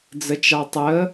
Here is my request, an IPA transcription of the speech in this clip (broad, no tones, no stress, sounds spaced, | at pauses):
d͡z ə t͡ʃ ɑ tˤ ə